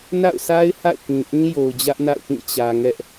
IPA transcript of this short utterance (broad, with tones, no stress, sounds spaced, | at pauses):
n a̰˦˨ ʊ̯ sʰ a˦ ɪ̯ h a̰˦˨ ɪ̯ k ĩ˨ ʔ ĩ˦ j o˨ ʊ̯ d͡ʑ ä˦ ʔ n a̰˦˨ ʊ̯ p ĩ˦˨ t͡ɕ ä˨ ŋ ɛ˦ ʔ